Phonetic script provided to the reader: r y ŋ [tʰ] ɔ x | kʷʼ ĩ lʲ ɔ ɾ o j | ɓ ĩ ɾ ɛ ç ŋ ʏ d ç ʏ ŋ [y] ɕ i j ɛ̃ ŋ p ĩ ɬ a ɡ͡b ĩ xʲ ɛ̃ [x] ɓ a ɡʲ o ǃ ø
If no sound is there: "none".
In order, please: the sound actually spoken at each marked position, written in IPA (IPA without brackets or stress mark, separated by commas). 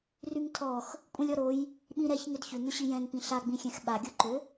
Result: tʰ, ʏ, x